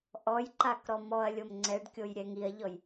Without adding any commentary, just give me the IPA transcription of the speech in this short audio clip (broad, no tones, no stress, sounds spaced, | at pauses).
ʔ ɔ j ǃ a k ɾ ɔ m ɔ ɐ̯ lʲ o m ŋ͡ǀ ɛ ɖ kʲ o j ɾʲ ɛ ŋ i ɐ̯ ʎ ɔ j